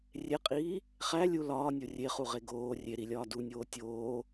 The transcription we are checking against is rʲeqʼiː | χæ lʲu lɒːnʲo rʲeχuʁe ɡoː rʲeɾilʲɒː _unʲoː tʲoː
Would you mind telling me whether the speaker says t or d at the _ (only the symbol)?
d